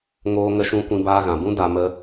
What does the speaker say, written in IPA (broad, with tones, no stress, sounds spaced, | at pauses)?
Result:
ŋ oː˦ ŋ ə˦ ʃ ũ˦ kʷ ĩ˧ b aː˧ ɣ ã˨ b ũ˦ d a˧ m ə˦